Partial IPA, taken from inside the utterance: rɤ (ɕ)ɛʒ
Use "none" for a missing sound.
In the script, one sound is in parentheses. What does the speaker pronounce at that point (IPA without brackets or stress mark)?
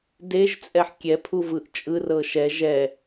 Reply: ʃ